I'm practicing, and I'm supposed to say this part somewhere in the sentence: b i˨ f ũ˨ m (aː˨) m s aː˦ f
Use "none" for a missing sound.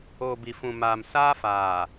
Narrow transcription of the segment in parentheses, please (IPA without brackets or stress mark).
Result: aː˨